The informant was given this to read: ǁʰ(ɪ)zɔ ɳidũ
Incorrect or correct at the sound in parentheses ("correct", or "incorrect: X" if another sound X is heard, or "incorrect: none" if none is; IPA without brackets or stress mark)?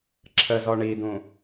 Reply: incorrect: ə